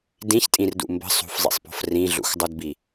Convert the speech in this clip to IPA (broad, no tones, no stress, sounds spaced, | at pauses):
d ĩ ç tʼ ĩ r d ṵ m b ə̤ sˤ ṳ f zˤ ḭ sˤ p ɔ̤ f r ĩ ɮ ṵ x dˤ u d b i